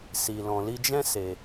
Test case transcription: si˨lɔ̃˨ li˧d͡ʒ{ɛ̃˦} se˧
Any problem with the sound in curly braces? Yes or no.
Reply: no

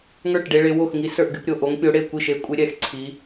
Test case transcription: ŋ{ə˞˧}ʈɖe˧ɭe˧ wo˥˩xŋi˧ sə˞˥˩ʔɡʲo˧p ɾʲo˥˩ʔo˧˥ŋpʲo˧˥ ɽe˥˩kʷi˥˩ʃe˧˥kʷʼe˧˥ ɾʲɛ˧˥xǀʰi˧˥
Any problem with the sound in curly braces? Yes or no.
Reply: yes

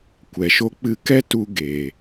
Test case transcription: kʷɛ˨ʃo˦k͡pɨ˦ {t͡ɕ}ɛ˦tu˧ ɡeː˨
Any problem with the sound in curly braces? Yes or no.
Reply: yes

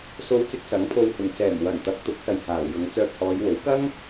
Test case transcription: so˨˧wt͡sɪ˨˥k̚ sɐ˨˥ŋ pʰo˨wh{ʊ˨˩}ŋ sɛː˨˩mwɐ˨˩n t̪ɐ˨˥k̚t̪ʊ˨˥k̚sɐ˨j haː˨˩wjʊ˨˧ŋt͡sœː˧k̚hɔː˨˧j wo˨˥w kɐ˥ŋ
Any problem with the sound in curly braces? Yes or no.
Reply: no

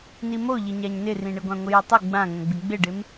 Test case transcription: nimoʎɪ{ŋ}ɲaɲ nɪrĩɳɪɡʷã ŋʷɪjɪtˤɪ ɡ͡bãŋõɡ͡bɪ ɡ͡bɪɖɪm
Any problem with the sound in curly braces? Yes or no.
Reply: yes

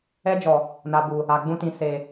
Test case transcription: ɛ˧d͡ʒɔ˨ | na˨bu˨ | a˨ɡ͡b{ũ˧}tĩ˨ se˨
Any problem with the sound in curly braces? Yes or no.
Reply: no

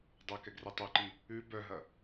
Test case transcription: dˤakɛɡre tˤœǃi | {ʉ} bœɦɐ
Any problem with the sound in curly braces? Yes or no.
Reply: no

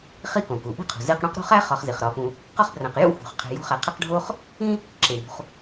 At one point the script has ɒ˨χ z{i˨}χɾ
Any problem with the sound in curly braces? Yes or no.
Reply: yes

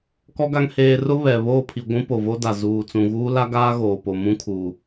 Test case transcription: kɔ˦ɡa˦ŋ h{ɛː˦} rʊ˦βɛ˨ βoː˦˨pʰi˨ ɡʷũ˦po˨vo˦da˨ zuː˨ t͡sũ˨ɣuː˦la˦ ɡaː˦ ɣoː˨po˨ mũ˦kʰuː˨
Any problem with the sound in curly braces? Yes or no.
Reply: yes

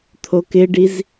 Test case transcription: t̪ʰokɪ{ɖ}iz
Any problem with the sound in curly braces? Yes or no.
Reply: no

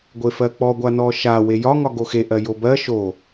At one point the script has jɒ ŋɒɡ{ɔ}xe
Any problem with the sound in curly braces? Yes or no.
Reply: yes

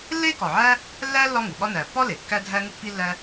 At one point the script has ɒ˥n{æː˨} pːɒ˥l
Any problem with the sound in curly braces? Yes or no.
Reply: no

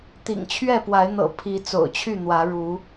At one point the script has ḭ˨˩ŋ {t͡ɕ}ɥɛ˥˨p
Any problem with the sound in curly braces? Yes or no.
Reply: yes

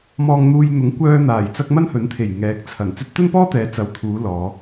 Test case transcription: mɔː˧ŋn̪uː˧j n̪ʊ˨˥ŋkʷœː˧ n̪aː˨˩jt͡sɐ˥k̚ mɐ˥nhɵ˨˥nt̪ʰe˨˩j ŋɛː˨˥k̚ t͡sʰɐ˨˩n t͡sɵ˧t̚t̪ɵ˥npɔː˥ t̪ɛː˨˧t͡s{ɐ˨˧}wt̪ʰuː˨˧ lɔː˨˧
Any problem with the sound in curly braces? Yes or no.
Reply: no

